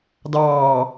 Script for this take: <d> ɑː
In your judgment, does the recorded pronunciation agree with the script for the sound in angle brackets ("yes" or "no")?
yes